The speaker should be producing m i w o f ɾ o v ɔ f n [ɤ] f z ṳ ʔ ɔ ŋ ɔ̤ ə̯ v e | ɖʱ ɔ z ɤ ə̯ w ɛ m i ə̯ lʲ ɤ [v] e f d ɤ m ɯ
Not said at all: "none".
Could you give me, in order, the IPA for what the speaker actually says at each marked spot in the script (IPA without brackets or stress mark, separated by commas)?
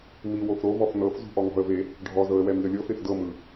ɤ, f